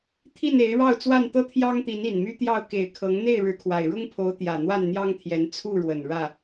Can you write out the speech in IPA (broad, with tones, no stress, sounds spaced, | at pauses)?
t̪ʰ i˥˨ n e˨˦ ɪ̯ ɻ ɑ˥˨ ʊ̯ t͡s w a˥˨ n t̪ ɤ˦ t̪ʰ j ɑ˦ ŋ t̪ i˨˦ n i˨˩ n m y˦ t̪ j ɑ˥˨ ʊ̯ k e˨˩ ɪ̯ kʰ ɤ˨˦ ŋ n̪ e˥˨ ɪ̯ ɻ ɻ̩˨˦ kʰ w a˨˩ ɪ̯ ɻ ʊ˦ ŋ pʰ o˨˦ ʊ̯ t̪ j ä˨˩ n̪ w a˥˨ n n̪ j ɑ˦ ŋ t̪ʰ j ɛ˨˦ n t͡sʰ u˥˨ ɻ w ə˨˩ n ɻ ä˥˨